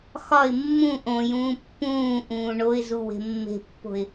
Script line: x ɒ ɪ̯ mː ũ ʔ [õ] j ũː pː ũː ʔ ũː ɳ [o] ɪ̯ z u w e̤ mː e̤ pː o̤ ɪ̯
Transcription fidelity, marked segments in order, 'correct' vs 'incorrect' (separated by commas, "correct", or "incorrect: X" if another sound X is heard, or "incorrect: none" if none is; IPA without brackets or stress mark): correct, correct